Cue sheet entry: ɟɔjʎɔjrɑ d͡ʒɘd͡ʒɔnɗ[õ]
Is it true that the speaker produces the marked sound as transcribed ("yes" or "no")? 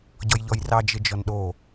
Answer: no